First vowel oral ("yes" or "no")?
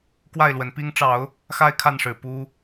yes